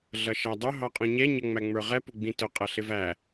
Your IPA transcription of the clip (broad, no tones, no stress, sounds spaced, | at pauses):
ɮ ʌ ʃ æ dˤ ʊ ɦ ɑ qʼ ɔ̃ ɲ ɛ ɲ ʌ ŋ͡m æ ŋ͡m ə˞ ʁ ɛ p ʊ ɡ͡b ĩ t ʊ qʼ ʌ ɬ ɪ v æ